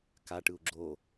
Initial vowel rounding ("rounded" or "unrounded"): unrounded